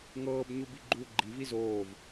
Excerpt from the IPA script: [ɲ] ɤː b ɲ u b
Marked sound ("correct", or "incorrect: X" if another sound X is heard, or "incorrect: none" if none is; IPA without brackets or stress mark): incorrect: ŋ